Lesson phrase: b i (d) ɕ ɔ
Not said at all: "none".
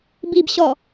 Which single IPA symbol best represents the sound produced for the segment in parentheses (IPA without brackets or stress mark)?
b